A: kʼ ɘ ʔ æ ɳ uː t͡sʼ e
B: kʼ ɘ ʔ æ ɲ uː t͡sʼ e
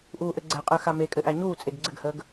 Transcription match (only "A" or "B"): B